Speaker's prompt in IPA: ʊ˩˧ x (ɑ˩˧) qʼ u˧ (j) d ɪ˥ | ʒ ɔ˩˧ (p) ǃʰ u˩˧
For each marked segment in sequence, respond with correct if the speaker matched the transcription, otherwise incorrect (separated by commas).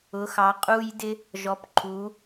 correct, correct, correct